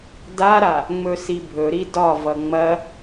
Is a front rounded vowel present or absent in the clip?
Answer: absent